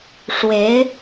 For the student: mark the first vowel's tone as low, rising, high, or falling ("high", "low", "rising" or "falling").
rising